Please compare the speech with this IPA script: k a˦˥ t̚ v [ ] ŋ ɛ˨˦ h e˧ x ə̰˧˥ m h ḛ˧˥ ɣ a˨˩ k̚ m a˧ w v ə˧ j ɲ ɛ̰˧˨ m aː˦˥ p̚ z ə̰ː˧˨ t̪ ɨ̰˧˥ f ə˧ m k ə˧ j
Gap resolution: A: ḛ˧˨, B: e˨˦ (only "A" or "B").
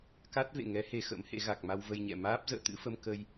A